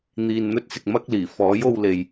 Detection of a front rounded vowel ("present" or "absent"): absent